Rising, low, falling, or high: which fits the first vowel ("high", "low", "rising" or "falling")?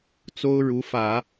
high